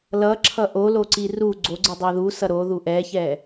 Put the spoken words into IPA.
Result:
l ʌ ǁʰ ʌ ʔ o l o ǀ i r u ɡ͡ǀ o ɡ͡ǀ ɯ dˤ ɛ ð u s ʌ ɾ o ð u ʔ ɛ ç ɛ

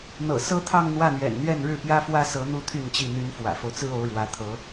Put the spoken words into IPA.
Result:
n̪ ɤ̰˨˩ s ɤ˥ t̪ʰ ɑ˥˧ ŋ n̪ w ä˥˩ n̪ ɥ ɛ̰˨˩ n n̪ ɥ ɛ˥˧ n ɻ ɻ̩˥˩ p j ä˥ f w ä˥ s ɤ˧˥ n̪ u˥ t̪ʰ y˥˧ n t͡ɕ i˥˩ n̪ y˧˥ n f w ä̰˨˩ f o˦ ʊ̯ t͡s ɹ̩˥ o˧˥ ʊ̯ ɻ w ä˧˥ t̪ʰ ɤ˧˥

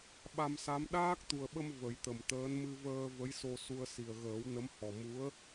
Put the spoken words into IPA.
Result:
ɓ a˧ m s a˧˥ m ɗ aː˦˥ k̚ t̪ u˨˩ ə̯ ɓ ə˧ m v ə˨˩˦ j t̪ ə˨˩ m t̪ əː˧˥ n m ɨ˧ v əː˧ v ə˧˥ j s o˧ s u˧ ə̯ s i˨˩ ə̯ ɣ əː˨˩˦ w n ə˧˥ m h ɔ˨˩ m u˧˥ ə̯

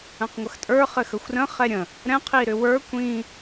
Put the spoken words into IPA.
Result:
ə̃ q ŋʷ ə x tʼ ə˞ χ ɘ x ə xʷ r ə̃ χ ɛ ɾʲ ə̃ | ɾ ɛ̃ qʰ i ɾ ʏ w ə˞ kʷ ĩ

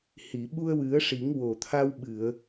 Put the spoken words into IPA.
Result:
h i˨˩˨ ɓ u˧ ə̯ w ɨ˨˩˦ ə̯ ʂ i˨˩˦ ŋ w o˨˩ t̪ʰ a˧ w ɓ ɨ˨˩˨ ə̯

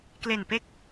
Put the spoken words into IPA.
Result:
k l e˨˩ n p e˦˥ k̚

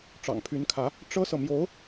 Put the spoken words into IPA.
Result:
ʈ͡ʂ ɑ̰˨˩ ŋ pʰ y˧˥ n kʰ ä˧˥ | ʈ͡ʂ ɤ˥ s ɤ˨ m j o˧˥ ʊ̯

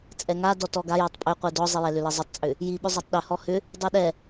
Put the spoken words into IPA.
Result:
t͡sʼ ɛ ŋ a d ɔ t ɔ ɡ a j ɛ tˤ pʼ ʏ qʷ i d ɔ zˤ i j ɛ l ʏ l ɛ zˤ ʏ tˤ t͡sʼ ʏ | j i ɓ ʏ zˤ a tˤ ɗ ʏ h ɔ h ʏ | dˤ i ɗ ɛ

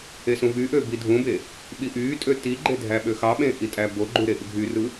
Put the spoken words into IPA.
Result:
e s ũ v y ʔ ø b i dʱ ũ b e | ɓ i ʔ yː tʼ ø t i ɡ͡ǃ e dʱ æ ɓ ø x ɑ ɓ ẽ ʔ i tʼ æ b o ɡ͡ǃ u ɾ e ʔ y ɡʱ y r ɯ

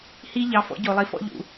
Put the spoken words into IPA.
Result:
h i˥ ʎ ɑ˧˥ f ɔ̰˧˥ ɟ o˧ lˠ i˧˥ f ɔ̰˥ ʎ ṵ˧

